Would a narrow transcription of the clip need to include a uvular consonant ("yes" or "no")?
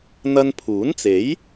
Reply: no